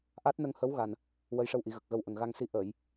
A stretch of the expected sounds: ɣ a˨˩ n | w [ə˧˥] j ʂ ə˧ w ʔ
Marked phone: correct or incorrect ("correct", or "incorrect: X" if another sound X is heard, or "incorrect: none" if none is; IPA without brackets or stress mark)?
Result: correct